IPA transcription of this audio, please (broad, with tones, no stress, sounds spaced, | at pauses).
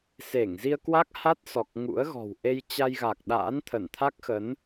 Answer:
s e˧˩ ŋ z i˧ ə̯ k w a˦˥ k̚ h a˦˥ t̚ s ɔ˨˩ k̚ ŋ ṵ˧˥ ə̯ ɣ ɔ̤˨˩ w ʔ e˧ j t͡ɕ a˧ j ɣ a˨˩ k̚ ɗ a̰ː˧˥ n t̪ʰ ə˧˩ n t̪ʰ a˦˥ k̚ x ə˨˦ n